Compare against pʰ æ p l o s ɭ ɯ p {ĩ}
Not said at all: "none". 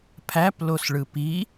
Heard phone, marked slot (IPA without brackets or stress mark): i